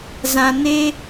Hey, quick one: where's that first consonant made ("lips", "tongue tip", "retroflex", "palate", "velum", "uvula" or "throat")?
tongue tip